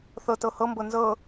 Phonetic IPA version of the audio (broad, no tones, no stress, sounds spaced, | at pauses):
θ ɤ t ɤ h ɤ m b ɤ n z ɤ